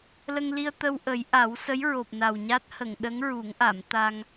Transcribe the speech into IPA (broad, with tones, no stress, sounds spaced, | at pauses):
l ə˧ ŋ l i˧ ə̯ t̪ ə˧ w ʔ ə˨˩˦ j ʔ a˨˩˦ w s ə˧˥ j ɹ o˨˩ p̚ n a˨˩ w ɲ a˦˥ t̚ h ə˨˩˨ ŋ ɗ ə˧˥ ŋ ɹ u˨˩˦ ŋ ʔ a˨˩˨ m t̪ a˧ ŋ